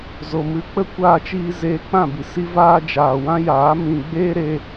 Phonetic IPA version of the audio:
z o˨ m ɨ˧ k͡p ə˦ kʷ aː˧ t͡ʃ iː˧ z eː˧ k͡p ã˦˨ b i˨ s i˧ v aː˧ d͡ʒ aː˨ w ã˦ j aː˨˦ m ĩ˨ ɡ͡b eː˦ ɾ e˧

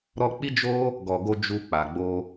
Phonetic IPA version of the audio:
ɾ ɔ˧ k͡p i˦ d͡ʒ o˦ | ɡ ɔ˨ ɡ o˧ d͡ʒ u˧ k͡p a˨ ɡ͡b o˧

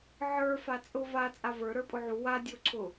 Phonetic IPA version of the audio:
ʕ ə˞ f a t͡sʼ ʊ v a t͡sʼ a v ə˞ ɾ ə˞ pʼ ʊ ʕ u w a dʲ o ǀʰ ʊ

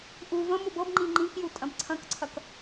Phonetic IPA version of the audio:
ʔ u v ə̃ m u b ɤ b ŋ͡ǃ ĩ ŋ͡ǃ ĩ k j u tʼ ɐ̃ b ǀʰ ɐ̃ k ǀʰ ɐ k

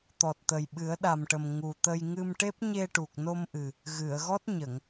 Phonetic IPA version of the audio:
t̪ ɔ˨˩ t̚ t̪ ə˨˩ j ɓ ɨ˨˩˦ ə̯ ɗ a˨˩ m ʈ ə˨˩ m ŋ u˨˩ t̪ ə˧ j ŋ ɨ˧ m ʈ e˦˥ p̚ ɲ e˧ ʈ u˨˩ k̚ n o˧ m ʔ ɨ˨˩ | ɣ ɨ˨˩˨ ə̯ ɣ ɔ˦˥ t̚ ɲ ə˨˩˨ ŋ

